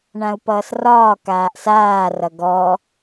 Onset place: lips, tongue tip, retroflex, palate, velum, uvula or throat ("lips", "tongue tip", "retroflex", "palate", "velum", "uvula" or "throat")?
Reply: retroflex